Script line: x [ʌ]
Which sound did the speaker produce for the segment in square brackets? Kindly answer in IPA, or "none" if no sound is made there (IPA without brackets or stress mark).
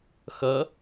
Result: ʌ